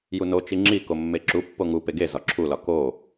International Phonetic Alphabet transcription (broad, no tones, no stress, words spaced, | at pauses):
juno t͡ʃiŋ͡ǁi komːeǁu pːoŋu peɡe zɒǁʰulɒ ko